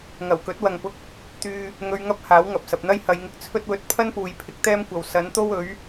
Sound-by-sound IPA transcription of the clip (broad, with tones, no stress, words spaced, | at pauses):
ŋɐ˨˩wkɵ˨˥t̚wɐ˨ŋpʊ˧k̚ | t̪yː˧ | ŋɵ˨˧ɥŋɐ˧p̚ haː˨˥wŋɐ˨p̚ sɐ˨p̚n̪ɐ˥j hɐ˨˧j ŋɪ˧k̚t͡sʰɵ˥t̚wɵ˨˥t̚ pʰɐ˥npuː˨j pʰɪ˨˥k̚t̪ɛː˥mkʷɐ˨w sɐ˨˥nt̪o˥wɵ˨˥ɥ